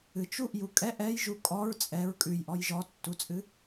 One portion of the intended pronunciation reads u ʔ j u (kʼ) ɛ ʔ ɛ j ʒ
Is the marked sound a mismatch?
no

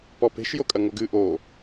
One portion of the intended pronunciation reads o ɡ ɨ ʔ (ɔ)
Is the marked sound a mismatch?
yes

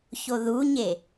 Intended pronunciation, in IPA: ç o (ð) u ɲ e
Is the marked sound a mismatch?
no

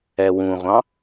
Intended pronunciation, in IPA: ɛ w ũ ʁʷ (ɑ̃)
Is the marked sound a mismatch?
no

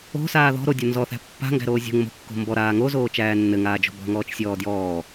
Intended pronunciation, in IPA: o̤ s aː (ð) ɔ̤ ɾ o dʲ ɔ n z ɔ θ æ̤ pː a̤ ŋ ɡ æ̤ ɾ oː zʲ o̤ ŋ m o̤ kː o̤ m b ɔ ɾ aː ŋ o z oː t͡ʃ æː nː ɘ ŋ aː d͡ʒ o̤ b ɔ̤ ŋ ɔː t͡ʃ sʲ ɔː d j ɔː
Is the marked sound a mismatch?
no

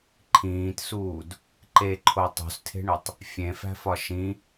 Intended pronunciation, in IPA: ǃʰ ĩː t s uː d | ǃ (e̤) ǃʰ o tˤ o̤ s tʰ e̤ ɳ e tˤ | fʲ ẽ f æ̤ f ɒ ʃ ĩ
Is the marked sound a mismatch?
yes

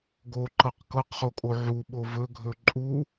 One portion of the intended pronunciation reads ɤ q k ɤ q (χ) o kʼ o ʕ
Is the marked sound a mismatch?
no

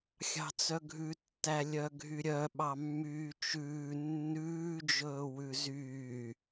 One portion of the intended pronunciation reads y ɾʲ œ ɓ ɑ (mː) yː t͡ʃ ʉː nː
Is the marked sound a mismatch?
no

